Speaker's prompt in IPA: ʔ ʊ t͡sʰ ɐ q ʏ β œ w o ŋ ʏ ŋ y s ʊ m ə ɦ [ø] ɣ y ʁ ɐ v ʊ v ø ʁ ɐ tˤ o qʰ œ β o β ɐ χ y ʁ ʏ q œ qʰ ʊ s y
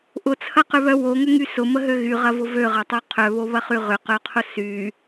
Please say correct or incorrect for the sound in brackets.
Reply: correct